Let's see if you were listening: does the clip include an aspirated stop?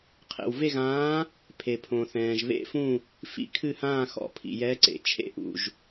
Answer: yes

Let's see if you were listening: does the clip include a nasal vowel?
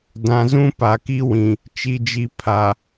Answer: yes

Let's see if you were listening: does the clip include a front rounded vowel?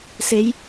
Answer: no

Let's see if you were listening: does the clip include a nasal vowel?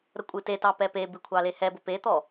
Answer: no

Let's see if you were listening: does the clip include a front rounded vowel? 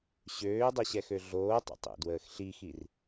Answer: yes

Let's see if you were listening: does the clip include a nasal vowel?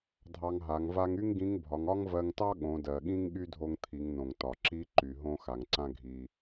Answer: yes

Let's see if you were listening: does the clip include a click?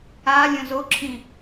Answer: yes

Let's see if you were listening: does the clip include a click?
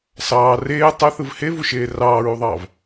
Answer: no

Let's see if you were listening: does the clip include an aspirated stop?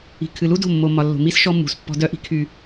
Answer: yes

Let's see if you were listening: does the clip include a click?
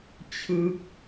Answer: no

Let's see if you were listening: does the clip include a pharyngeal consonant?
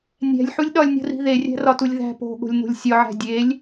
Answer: yes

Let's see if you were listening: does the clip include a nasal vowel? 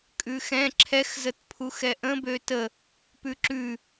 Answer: yes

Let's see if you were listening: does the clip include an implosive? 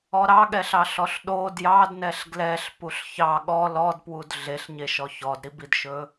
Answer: yes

